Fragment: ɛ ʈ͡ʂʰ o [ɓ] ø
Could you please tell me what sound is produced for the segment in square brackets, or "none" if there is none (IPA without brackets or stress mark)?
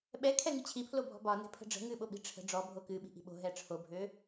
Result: bʱ